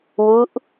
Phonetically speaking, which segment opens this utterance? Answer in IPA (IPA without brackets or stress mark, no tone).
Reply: w